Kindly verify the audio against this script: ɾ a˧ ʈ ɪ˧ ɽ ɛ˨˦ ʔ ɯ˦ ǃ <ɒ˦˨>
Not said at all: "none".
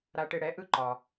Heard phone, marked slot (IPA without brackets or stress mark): ɒ˨